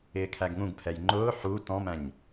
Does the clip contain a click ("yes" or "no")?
yes